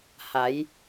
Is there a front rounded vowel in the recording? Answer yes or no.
no